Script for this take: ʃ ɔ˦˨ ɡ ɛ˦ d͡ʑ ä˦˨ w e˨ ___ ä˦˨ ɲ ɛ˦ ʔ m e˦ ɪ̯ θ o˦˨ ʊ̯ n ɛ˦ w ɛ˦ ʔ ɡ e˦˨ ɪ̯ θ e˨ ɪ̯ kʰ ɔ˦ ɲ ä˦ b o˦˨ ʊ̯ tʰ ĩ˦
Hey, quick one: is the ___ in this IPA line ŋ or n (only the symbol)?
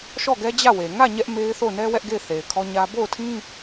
ŋ